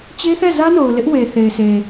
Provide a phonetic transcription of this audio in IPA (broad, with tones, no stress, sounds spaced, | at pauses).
t͡ɕ e˦ θ ɛ˦˨ z ä˦ n o˨ ʊ̯ l ɪ˦ ʔ w e˨ θ e˨ ɪ̯ sʰ e˨